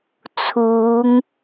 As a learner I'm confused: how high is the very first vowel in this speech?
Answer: high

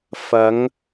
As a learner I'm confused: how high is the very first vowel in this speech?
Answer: low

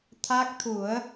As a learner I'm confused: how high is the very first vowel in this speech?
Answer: low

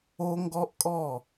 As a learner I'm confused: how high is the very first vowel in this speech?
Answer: mid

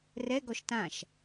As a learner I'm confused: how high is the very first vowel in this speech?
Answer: mid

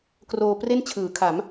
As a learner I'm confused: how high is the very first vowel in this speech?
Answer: mid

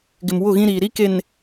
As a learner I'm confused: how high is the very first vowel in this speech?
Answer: high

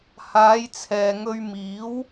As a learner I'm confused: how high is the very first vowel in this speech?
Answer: low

